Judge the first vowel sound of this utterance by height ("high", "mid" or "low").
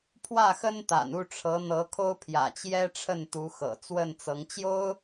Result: low